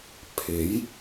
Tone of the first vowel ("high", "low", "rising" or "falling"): rising